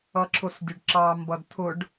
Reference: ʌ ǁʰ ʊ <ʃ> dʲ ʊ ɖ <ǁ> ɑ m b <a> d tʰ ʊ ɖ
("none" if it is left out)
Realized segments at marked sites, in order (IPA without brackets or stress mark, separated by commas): s, ǁ, ʌ